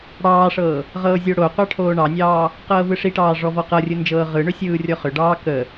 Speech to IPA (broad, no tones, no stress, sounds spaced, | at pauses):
ɽ ɑː ʂ ɤː | ʁ ɤː zʲ o ɽ o qʷ ɑ ʈʰ oː ɳ ɑ nʲ ɑː | q ɤː v ɯ ʂ i ʈ ɑː ʐ ɔ v ɔ q ɤ rʲ ɯ n d͡ʒ ɤː ʁ ɯ ɳ ʏ sʲ ɯː rʲ ɔ χ ʏ ɖ ɑː k ə